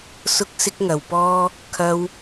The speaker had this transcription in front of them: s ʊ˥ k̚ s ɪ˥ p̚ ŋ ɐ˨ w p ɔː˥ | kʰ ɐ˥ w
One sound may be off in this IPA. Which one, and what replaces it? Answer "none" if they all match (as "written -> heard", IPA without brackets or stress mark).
p̚ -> k̚